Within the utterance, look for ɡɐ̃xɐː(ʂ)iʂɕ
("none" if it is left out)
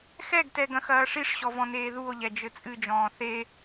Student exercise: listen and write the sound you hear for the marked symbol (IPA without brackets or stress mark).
ʂ